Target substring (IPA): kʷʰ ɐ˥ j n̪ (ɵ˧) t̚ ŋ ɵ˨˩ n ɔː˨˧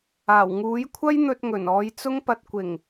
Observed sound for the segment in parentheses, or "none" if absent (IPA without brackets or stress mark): ɵ˧